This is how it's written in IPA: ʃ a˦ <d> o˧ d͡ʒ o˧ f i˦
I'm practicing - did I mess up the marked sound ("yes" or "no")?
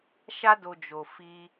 no